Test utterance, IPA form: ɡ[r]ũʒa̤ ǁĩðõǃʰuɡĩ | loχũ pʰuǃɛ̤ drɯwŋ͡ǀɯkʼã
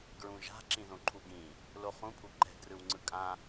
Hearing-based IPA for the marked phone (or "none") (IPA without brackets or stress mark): ɹ